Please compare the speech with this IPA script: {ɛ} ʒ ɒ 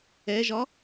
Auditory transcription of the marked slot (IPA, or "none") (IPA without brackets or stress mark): ɛ